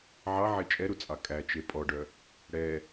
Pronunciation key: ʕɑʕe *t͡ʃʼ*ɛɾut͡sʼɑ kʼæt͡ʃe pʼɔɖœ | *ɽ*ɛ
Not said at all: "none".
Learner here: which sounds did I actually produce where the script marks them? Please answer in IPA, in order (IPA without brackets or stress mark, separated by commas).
t͡ʃʼ, ɽ